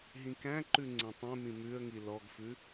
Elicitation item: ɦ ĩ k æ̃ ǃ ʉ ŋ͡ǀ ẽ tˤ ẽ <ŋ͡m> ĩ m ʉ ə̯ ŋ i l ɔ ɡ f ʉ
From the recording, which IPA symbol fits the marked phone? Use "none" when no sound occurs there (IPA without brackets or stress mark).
m